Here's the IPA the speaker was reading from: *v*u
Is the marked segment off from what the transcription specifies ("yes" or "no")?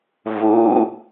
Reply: no